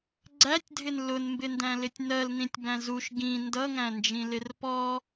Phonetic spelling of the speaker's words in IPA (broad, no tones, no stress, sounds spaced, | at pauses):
ɡ͡ǀ æ tʲ dʱ ɪ n l ʊ n m b ɪ n d æ̃ l ɪ tʲ n ɜ l n ĩ tʲ b æ̃ z u ʃ ɡ ĩ n d ʌ ŋ æ̃ n d͡ʒ ĩ l ɪ r p ɔ